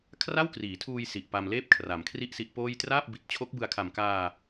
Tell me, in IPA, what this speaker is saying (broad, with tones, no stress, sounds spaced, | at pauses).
kʰ r a˥˩ w k r iː˩˦ tʰ uː˧ j s i˨˩ ʔ p a˧ m l eː˥˩ p̚ kʰ r a˩˦ m kʰ r i˥˩ ʔ s i˦˥ ʔ p oː˥˩ j t r aː˥˩ p̚ b i˨˩ t̚ t͡ɕʰ o˦˥ k̚ b ɯ˧ a̯ kʰ a˨˩ m k aː˧